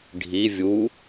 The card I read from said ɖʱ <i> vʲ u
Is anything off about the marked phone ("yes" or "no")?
no